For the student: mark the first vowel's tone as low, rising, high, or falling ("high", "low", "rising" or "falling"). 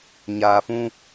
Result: low